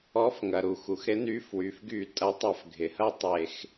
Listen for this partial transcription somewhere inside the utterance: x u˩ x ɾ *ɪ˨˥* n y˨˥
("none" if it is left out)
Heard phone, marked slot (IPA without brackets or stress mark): ɪ˨˥